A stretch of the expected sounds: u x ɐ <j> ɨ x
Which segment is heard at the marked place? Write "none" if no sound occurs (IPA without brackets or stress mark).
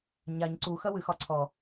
w